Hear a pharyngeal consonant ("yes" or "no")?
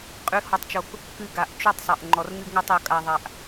no